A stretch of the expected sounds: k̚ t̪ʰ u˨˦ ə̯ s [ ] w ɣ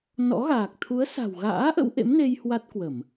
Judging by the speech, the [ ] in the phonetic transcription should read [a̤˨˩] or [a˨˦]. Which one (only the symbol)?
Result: a̤˨˩